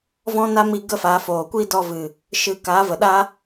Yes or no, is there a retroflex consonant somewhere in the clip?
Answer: no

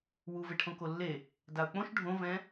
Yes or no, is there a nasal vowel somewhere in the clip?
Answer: yes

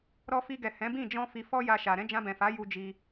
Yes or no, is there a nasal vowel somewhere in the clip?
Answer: yes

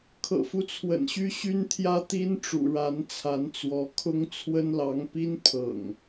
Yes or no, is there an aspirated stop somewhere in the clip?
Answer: yes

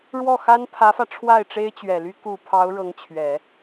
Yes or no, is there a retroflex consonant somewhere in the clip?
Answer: yes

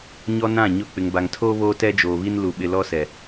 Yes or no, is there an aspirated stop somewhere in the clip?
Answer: yes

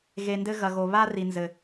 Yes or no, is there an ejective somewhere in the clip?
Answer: no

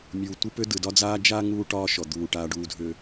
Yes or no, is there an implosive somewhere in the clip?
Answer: no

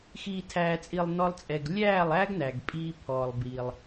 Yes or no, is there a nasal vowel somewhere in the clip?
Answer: no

